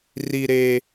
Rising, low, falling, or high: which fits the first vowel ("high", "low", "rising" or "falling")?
low